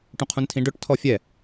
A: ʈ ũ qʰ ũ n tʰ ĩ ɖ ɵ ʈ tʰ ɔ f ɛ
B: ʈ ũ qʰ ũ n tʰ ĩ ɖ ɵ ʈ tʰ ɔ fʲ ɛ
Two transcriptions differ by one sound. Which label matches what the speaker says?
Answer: B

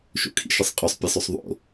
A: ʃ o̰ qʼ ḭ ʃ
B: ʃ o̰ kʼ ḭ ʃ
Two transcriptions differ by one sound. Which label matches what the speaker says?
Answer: B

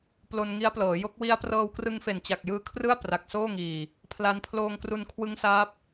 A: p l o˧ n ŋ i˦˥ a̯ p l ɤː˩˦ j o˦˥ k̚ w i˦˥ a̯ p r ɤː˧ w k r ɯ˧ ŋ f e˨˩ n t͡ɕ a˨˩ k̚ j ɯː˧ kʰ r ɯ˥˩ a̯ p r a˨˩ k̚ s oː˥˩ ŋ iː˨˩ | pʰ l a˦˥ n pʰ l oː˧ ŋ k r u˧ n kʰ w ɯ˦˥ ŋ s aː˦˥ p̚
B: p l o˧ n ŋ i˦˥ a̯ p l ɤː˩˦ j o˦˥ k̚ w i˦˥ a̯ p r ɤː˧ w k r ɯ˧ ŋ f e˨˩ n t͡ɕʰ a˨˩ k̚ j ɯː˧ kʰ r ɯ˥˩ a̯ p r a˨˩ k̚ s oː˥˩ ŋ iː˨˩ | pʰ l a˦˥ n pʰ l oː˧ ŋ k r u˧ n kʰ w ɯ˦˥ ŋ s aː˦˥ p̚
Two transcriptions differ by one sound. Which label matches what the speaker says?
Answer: A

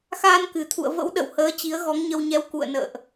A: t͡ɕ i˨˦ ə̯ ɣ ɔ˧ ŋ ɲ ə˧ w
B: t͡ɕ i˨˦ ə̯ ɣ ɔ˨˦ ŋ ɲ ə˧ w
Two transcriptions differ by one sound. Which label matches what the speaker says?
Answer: B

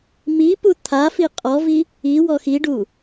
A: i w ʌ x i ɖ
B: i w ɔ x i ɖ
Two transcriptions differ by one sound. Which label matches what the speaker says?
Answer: B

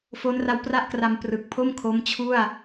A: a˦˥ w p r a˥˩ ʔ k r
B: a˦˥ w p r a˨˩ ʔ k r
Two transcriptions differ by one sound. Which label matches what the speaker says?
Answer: A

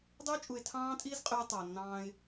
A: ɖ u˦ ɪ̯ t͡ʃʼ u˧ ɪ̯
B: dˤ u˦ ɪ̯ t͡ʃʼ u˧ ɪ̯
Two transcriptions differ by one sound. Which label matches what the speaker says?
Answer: B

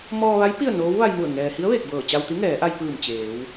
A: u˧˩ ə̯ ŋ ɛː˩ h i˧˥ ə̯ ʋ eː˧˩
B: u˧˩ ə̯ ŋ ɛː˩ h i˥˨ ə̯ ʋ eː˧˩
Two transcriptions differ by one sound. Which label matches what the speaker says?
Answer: A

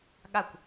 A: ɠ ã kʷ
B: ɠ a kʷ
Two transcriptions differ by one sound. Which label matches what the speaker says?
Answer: B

